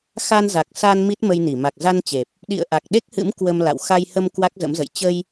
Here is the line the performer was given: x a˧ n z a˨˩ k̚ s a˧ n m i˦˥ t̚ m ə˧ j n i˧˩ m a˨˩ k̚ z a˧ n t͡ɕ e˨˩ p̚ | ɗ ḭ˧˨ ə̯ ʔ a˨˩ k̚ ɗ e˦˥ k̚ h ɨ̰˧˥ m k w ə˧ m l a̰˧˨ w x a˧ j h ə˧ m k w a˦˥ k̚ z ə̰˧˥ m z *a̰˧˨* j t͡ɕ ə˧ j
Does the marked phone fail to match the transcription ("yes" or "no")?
yes